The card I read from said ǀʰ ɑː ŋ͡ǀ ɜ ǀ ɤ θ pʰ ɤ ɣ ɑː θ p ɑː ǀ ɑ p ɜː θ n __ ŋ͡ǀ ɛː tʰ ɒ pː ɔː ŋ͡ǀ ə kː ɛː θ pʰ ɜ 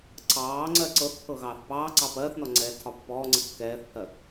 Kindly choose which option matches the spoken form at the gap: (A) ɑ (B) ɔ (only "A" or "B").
B